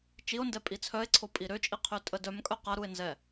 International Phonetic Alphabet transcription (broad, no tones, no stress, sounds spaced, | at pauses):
t͡ʃ i o̯ n d ɛ pʼ i t͡sʰ œ e̯ ǀʰ o pʼ i ɾ ø t͡ʃʼ i qʰ ø tʼ ə d œ m kʼ œ q a ɾ u e̯ n z ɛ